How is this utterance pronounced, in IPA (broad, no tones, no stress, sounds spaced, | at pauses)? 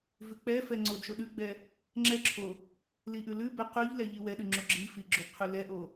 v ʉ k͡p ɛ f ɛ ŋ͡ǀ o d ʃ o ɗ ʉ ɡ͡b ɛ | ŋ͡ǁ ɛ ǁʰ o | l i ʔ ʉ l ʉ b ɛ q ʉ ʎ l ɛ ʎ i w ɛ ɗ ʉ ŋ͡ǁ o ɡ͡ǁ i f i ɡ͡ǁ o d qʰ ʉ l ɛ ʔ o